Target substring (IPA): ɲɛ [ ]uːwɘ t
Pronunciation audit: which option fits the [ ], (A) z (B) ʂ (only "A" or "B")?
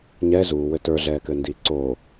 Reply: A